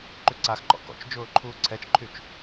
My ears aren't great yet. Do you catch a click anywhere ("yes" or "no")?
yes